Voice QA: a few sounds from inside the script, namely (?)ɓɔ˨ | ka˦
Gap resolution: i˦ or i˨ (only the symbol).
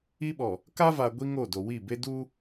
i˦